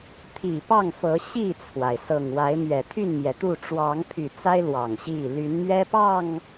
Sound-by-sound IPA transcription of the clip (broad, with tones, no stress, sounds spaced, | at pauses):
t̪ʰ i˨˩ p ɑ˥˨ ŋ f ɤ˨˦ ɕ i˥˨ t͡sʰ w a˩ ɪ̯ s ɤ˨˩ ŋ w a˨˦ ɪ̯ m ɥ ɛ˨˩ t̪ʰ y˥˨ n m j ɛ˩ t̪ u˥˨ ʈ͡ʂ w ɑ˨˦ ŋ pʰ y˨˩ t͡s a˦ ɪ̯ l w ɑ˨˩ ŋ ɕ i˥˨ l y˨˦ n m ɥ ɛ˦ p ɑ˥˨ ŋ